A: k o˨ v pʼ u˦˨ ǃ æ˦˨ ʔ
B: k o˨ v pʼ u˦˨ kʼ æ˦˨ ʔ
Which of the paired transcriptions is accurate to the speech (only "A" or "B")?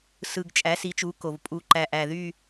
A